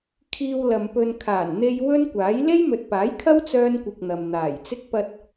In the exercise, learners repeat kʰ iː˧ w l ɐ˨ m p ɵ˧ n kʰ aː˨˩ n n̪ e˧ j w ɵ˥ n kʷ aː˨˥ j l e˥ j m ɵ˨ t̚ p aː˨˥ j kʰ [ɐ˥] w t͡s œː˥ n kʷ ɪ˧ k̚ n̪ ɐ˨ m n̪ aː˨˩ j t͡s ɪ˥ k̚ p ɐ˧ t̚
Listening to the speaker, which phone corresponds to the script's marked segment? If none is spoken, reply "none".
ɐ˥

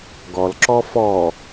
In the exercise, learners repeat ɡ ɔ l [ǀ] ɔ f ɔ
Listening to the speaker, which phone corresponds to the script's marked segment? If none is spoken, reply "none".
ǁ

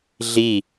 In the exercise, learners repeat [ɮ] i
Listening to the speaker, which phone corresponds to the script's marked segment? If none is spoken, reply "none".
ɮ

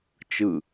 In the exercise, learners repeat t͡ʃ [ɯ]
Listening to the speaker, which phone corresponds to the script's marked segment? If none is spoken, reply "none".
ɯ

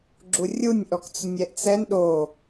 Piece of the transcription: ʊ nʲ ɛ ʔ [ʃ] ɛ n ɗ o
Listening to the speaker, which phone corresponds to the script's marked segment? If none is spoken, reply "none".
t͡s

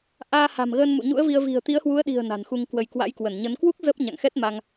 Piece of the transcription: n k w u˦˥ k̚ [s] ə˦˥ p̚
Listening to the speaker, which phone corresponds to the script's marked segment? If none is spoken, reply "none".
z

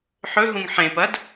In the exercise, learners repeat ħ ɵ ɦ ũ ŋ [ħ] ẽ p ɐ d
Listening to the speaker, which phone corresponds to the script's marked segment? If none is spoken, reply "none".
ħ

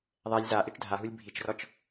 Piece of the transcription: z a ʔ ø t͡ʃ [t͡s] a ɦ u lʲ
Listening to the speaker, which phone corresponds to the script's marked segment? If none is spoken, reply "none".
dʱ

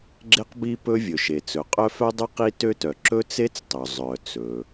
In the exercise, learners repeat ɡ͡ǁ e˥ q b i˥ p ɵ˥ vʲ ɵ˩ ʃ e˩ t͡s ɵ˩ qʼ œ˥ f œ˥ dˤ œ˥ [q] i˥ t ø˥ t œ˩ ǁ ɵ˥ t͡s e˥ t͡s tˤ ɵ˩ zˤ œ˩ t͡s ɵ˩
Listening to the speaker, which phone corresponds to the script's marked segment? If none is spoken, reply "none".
q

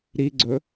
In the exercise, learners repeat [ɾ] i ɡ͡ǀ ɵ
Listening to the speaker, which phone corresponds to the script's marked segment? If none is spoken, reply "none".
ɾ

